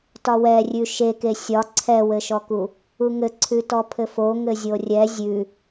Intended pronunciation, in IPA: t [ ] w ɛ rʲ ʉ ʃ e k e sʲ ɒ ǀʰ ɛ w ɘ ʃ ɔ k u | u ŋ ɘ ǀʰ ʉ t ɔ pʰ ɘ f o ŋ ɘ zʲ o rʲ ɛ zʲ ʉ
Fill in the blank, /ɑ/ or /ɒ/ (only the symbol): ɒ